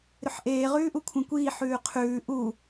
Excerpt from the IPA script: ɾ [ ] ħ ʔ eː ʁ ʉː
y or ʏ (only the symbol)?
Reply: ʏ